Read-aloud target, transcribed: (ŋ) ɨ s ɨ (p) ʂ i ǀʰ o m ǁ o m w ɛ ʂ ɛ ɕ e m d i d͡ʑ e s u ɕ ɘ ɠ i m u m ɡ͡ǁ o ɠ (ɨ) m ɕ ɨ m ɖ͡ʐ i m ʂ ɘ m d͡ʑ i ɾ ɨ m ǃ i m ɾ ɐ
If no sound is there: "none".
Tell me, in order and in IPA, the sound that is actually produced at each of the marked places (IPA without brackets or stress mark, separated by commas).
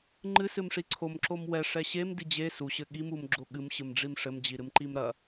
ŋ͡ǃ, m, ɨ